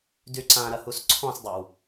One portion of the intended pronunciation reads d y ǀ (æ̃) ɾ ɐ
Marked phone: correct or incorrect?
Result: incorrect: ã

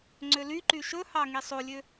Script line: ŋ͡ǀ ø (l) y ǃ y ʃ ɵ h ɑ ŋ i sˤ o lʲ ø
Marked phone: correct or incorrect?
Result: correct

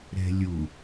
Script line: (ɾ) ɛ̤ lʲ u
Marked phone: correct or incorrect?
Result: correct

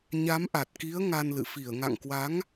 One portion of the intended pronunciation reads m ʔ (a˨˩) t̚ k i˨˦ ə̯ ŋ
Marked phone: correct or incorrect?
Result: correct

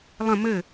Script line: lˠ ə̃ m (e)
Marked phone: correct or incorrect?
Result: incorrect: ɘ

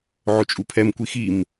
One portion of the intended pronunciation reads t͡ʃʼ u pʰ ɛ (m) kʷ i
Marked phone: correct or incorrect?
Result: correct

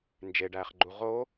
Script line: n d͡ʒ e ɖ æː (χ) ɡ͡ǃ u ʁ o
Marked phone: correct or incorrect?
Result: correct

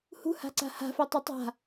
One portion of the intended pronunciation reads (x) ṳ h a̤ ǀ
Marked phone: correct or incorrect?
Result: incorrect: h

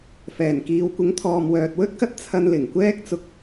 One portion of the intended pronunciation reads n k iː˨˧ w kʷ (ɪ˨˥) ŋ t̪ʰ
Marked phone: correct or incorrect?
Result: correct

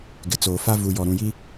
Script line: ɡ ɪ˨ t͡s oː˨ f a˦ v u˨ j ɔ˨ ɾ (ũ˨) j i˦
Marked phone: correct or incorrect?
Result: correct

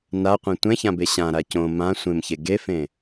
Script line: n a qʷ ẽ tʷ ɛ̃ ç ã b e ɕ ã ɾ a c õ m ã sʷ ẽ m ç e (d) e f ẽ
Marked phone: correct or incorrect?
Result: incorrect: ɡ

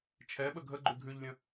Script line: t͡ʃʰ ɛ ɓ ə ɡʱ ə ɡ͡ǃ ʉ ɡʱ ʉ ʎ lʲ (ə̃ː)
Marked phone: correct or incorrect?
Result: incorrect: ə̃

